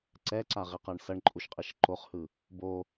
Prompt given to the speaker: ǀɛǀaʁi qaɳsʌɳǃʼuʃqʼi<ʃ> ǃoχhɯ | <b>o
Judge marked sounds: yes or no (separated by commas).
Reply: yes, yes